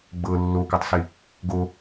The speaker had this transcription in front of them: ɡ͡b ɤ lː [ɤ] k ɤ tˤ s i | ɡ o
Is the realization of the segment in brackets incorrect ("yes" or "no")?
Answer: yes